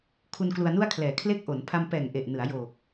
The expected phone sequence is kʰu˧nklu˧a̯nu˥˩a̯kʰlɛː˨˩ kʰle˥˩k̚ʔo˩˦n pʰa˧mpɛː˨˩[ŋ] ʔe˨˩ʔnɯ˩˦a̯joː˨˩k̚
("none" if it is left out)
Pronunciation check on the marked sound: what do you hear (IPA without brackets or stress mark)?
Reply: ŋ